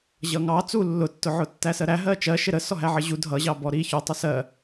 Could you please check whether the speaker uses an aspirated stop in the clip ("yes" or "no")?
no